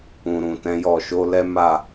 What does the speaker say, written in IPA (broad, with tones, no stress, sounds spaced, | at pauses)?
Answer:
ũ˨ ɾ ũ˨ t ɛ̃˨˦ j ɔ˦˨ ʃ o˨˦ l ɛ˦ m a˦˨